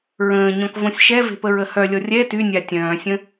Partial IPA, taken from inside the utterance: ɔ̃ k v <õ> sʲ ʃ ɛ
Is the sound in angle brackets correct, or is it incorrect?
correct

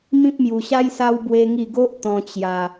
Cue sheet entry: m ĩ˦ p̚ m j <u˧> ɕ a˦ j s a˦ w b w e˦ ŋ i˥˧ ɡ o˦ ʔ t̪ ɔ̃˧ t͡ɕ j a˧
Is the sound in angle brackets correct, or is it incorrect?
correct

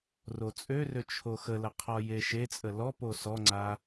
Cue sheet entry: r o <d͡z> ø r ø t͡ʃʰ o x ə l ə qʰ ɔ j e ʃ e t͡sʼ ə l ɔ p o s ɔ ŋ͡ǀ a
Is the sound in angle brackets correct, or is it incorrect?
incorrect: t͡sʼ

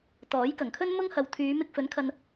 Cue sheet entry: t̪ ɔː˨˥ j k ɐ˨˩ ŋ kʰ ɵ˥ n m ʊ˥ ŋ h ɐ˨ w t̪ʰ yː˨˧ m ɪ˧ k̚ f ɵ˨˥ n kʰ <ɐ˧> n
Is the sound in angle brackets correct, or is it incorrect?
correct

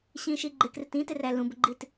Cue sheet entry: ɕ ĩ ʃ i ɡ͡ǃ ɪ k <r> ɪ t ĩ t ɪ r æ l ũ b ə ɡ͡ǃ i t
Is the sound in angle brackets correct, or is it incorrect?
correct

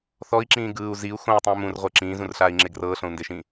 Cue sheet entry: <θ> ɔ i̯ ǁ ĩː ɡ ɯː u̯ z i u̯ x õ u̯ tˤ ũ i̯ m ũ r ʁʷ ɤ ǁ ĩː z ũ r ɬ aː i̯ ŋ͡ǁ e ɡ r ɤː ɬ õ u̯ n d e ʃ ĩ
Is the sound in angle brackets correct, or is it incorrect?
correct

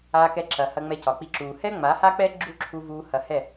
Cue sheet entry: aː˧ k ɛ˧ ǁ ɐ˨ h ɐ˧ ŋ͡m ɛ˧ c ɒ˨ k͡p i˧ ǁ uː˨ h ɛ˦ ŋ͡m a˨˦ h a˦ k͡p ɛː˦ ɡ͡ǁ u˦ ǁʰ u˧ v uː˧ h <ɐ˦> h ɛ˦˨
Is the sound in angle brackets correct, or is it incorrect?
incorrect: ɐ˧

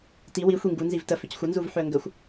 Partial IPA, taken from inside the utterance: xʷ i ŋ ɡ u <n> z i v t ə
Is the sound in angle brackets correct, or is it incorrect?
correct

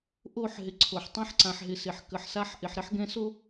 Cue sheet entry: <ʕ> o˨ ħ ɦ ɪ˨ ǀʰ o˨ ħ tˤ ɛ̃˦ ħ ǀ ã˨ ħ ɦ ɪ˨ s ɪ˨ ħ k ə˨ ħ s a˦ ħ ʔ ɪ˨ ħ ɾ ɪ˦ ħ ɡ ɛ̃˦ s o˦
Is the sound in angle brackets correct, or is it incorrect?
incorrect: ʔ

